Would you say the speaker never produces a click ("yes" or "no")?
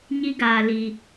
yes